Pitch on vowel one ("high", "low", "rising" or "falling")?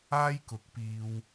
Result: high